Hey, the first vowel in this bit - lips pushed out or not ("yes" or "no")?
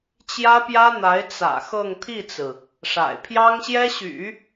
no